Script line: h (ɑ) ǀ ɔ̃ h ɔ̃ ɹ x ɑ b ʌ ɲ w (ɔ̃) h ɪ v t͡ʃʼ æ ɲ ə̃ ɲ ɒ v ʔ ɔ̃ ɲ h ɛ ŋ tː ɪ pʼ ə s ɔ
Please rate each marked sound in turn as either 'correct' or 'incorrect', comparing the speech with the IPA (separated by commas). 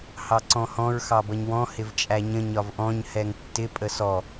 correct, correct